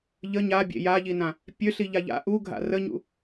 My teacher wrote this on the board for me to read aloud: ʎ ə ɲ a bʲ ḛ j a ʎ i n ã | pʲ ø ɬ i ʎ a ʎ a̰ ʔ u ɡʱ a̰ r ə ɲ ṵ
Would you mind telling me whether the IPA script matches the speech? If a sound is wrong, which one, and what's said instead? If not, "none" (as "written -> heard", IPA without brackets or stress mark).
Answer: none